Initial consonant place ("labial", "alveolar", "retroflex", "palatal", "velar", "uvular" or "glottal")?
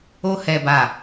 glottal